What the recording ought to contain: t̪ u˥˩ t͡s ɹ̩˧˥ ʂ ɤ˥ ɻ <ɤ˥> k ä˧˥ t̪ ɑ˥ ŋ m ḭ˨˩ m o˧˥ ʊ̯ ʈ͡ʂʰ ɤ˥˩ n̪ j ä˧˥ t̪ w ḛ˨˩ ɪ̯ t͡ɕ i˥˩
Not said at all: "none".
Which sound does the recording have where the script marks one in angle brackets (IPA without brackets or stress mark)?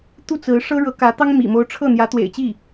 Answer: ɤ˧˥